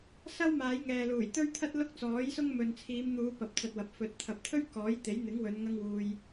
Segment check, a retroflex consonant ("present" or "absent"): absent